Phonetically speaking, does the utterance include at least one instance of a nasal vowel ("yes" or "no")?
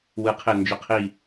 no